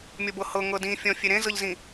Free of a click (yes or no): yes